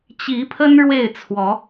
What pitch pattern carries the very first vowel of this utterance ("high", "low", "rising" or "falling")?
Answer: rising